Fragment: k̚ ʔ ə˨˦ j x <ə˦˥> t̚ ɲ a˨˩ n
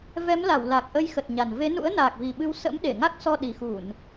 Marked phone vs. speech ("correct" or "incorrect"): incorrect